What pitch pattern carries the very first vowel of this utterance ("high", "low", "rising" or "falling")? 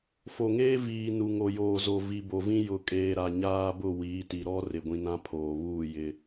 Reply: low